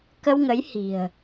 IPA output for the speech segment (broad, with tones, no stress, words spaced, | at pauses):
kə˧wŋə˨˦j hi̤˨˩ə̯